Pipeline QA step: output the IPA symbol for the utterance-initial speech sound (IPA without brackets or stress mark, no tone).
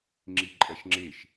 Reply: ŋ͡ǁ